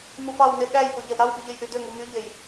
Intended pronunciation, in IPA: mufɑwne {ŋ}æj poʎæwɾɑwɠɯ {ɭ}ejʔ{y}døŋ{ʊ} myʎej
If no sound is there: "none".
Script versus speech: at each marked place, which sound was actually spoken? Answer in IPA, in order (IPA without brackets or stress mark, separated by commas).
ɠ, ʎ, y, u